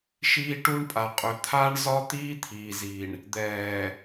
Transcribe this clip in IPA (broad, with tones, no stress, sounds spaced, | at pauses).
ʃ iː˦ ʈ u˦ ɳ pʼ a˨ qʼ ɵ˨ t̪ʰ a˦ ɳ z ɒ˦ t̪ iː˦ t̪ʰ iː˨ z i˨ ɳ | d̪ ɛː˨